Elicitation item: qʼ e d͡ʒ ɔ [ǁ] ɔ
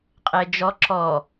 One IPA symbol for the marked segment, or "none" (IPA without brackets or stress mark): ǁ